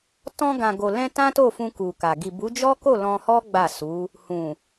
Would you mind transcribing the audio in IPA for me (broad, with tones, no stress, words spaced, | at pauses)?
tɔ̃˧ɡã˨ɡo˨lɛ̃˧ tã˦to˦˨fũ˧ ku˨ka˨ ɡi˨bu˨˦d͡ʒɔ˦ko˦˨ lɔ̃˧hɔ˦ ɡ͡ba˦˨su˨˦ | hũ˨